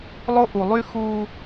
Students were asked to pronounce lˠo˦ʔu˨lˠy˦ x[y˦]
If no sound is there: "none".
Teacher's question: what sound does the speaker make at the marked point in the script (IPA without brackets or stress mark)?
u˦